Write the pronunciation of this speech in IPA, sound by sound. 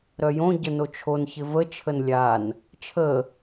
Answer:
ɾ œ j õ ɟ ə n o t͡ʃʰ o n ç ɪ v ə t͡ʃʰ ə n lʲ a n | t͡ʃʰ ə

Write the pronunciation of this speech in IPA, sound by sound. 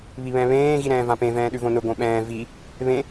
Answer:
β i β ɛ̃ β ẽː ɣ i ɾ ɛ̃ː v ã p ẽ v ɛ̃ː ɗ ʉ v õ n ʊ ɡ õ ɓ ɛ̃ː v i | β ẽ

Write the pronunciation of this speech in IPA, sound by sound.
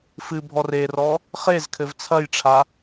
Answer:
f ɨ bʱ ɔ r e r ɔ | χ e z kʰ ɘ v t͡sʰ ɐ j ʈ͡ʂʰ a

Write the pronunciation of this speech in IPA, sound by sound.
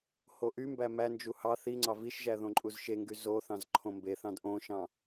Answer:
h o ʔ y m b æ m æ n d͡ʒ u h ɑ θ i ŋ͡ǀ ɑ v i ʃ ʒ æ ð õ ǃʼ u z ʃ e ŋ ɡ y z o θ ɑ̃ z ǃʰ õ m b e θ ɑ̃ d ʔ õ ʃ ɑ̃

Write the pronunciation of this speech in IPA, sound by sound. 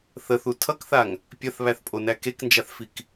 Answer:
θ ə θ u tʰ ʌ k θ a ŋ | pʲ ɐ θ β æ θ pʼ o n æ k e k n d͡ʒ a θ f i k

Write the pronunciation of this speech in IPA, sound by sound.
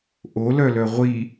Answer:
ʔ o l œ l œ ʁʷ i

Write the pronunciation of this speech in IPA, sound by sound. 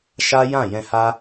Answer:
ʃ a˦ j ã˦˨ j ɛ̃˧ h a˦

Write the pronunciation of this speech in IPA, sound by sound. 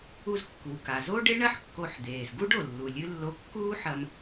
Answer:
u˧ z kː u˩ k a˩ z o˥ ɖ e˥ ɳ ɐ˥ ħ kː o˧ ħ d̪ eː˩ z ɡ u˥ ɖ o˩ lː u˩ lʲ ɨ˧ lː o˧ kː uː˥ ħ ɐ˧ m

